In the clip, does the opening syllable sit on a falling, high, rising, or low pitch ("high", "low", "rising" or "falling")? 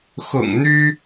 low